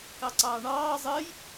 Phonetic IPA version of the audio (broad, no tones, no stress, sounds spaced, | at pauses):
k ɑ ǀ ɑː ɳ ɑː zˤ əː j